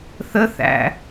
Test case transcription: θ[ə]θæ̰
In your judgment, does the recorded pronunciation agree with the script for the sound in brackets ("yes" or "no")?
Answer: yes